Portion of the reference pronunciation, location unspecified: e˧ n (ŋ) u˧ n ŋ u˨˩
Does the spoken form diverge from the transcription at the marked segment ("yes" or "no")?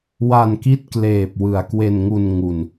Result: no